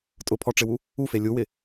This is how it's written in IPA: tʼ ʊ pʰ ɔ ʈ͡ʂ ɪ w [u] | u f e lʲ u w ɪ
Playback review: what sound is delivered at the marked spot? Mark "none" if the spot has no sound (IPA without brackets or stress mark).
u